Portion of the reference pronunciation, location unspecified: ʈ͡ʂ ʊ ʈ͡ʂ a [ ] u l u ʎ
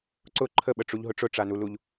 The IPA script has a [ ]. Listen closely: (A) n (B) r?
A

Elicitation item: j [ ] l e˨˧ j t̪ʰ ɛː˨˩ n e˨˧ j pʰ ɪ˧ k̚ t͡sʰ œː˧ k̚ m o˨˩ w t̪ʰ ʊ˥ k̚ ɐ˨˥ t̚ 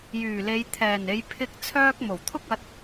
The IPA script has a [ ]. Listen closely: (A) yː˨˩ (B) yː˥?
A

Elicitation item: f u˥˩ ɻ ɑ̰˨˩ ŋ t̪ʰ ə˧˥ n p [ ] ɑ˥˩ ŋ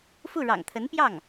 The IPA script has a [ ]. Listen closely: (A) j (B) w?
A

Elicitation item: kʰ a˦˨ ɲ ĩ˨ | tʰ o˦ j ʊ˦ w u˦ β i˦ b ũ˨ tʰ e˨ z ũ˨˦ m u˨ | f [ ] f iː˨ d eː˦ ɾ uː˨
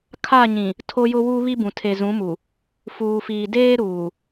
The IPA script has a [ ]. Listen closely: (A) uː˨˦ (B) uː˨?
B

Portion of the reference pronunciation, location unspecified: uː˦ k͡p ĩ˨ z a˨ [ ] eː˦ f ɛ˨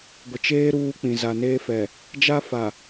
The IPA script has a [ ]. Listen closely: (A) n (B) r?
A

